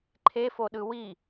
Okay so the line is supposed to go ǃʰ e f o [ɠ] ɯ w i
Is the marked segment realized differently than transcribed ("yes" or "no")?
yes